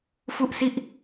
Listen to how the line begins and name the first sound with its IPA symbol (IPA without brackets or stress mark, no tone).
f